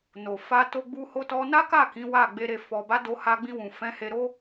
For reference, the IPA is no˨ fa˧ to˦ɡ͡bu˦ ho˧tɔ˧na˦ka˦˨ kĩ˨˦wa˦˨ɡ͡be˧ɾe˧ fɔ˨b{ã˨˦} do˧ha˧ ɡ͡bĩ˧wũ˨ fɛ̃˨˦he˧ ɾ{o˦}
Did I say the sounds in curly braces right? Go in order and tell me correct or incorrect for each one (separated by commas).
incorrect, correct